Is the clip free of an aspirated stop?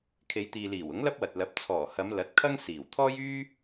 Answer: no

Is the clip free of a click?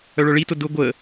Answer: yes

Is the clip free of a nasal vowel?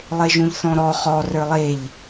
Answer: no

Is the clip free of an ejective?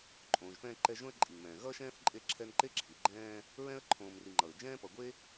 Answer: no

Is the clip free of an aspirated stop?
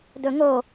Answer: yes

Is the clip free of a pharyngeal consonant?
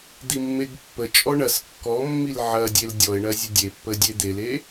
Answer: no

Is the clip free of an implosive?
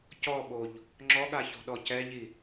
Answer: no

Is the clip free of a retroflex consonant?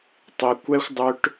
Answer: no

